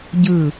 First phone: ɟ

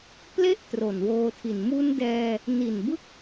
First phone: p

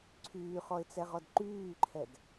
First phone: ǀʰ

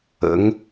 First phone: ə̰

